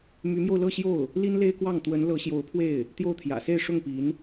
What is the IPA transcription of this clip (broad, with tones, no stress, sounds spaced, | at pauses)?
m y˧˥ m j o˧ ʊ̯ l ɤ˥˧ ɕ j o˥˩ ʊ̯ | l i˥ n l e˥ ɪ̯ k w ɑ˥˩ ŋ t̪ w ə˧˥ n l ɤ˧˥ ɕ j o˧˥ ʊ̯ pʰ w e˥˩ ɪ̯ | t̪ j o˥˩ ʊ̯ t̪ʰ j ä̰˨˩ s e˥˧ ɪ̯ ʂ ʊ˥˩ ŋ p i˧˥ n